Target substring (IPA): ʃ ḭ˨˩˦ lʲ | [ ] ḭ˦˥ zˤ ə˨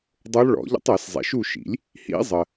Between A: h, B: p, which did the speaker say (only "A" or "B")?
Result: A